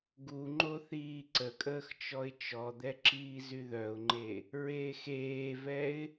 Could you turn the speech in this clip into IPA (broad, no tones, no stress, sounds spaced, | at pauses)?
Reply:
ɡ u ŋ͡ǃ o θ iː ǀ ə kʼ əː x t͡ʃ ɔ ɪ̯ t͡ʃ ɔ d̪ ɛ ǁ iː z y ð œ ʊ̯ ŋ͡ǃ e | ɹ eː x eː v ɛ ɪ̯